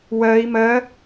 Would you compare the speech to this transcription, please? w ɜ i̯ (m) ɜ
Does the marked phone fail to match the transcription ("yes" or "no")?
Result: no